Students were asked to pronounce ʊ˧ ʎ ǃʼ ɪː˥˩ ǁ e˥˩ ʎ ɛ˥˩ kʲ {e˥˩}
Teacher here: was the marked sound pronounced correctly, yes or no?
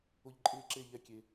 no